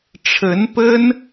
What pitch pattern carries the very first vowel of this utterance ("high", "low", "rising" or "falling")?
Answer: rising